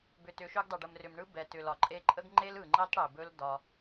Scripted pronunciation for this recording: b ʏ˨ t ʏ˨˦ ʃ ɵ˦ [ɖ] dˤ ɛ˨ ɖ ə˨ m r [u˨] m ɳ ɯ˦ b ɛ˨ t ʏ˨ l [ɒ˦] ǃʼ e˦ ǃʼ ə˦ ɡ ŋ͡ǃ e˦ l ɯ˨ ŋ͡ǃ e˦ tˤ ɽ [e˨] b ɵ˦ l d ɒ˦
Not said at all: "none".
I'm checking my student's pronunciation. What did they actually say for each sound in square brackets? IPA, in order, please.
ɡ, ʏ˨, ɒ˨, e˨

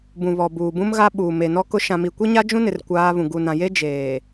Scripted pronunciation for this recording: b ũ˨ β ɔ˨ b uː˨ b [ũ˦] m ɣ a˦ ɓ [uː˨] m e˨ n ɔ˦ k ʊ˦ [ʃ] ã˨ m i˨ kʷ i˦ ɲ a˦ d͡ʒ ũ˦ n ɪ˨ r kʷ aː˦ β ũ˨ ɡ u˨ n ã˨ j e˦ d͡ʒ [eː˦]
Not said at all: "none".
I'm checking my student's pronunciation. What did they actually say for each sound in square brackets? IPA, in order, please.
ũ˦, uː˨, ʃ, eː˨

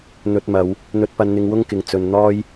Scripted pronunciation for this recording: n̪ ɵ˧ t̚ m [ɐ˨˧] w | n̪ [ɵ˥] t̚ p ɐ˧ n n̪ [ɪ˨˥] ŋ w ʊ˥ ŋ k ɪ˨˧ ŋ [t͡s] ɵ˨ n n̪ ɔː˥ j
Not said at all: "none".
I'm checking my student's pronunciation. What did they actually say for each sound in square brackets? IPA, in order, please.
ɐ˨˧, ɵ˧, ɪ˧, t͡s

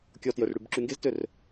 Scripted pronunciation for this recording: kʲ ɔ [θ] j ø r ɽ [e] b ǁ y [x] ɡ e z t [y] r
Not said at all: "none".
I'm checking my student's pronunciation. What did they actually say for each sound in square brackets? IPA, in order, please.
t, y, ŋ, ø

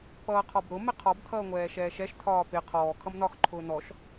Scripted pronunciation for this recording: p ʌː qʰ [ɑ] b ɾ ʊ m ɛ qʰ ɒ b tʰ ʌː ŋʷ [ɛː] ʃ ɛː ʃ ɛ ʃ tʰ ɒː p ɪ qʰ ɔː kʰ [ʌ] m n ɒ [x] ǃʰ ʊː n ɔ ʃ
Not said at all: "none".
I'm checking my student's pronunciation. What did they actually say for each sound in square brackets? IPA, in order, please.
ɒ, ɛː, ʌ, x

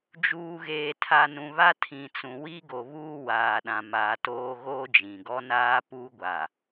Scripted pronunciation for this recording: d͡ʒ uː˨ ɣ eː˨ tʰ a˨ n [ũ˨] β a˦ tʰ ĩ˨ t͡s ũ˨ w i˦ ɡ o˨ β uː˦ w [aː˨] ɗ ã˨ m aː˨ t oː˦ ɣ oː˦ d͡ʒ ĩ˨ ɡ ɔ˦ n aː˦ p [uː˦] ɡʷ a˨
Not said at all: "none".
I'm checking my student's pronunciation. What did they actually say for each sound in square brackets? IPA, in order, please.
ũ˨, aː˨, u˦

